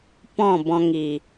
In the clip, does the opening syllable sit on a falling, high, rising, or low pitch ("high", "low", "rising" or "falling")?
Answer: falling